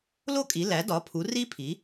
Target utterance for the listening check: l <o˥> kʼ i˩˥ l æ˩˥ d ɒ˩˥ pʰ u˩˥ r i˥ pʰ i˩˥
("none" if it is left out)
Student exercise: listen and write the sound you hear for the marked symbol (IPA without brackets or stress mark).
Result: o˥